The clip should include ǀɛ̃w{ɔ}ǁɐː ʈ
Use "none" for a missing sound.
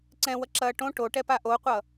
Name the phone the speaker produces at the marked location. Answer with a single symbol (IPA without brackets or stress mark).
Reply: ʌ